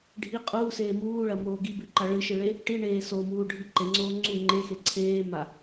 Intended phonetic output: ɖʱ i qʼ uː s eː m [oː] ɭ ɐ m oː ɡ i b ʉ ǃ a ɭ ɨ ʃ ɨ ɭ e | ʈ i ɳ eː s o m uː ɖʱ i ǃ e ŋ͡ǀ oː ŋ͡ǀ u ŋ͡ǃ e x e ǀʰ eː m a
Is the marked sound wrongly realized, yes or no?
yes